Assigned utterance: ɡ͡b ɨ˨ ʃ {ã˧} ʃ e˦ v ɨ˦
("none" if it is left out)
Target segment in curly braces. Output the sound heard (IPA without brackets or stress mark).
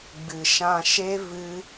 ã˧